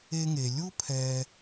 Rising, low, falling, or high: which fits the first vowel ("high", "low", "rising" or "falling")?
high